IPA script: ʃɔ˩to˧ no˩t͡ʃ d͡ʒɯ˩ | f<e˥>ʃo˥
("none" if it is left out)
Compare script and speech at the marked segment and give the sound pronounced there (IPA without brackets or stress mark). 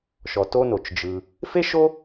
e˥